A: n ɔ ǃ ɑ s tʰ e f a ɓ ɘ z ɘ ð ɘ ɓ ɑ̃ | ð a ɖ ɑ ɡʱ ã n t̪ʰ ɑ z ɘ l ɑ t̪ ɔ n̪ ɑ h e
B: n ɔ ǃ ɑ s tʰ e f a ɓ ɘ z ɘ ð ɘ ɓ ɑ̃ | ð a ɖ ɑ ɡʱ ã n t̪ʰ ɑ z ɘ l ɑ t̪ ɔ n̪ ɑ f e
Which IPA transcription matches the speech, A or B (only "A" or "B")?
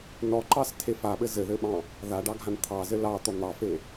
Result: B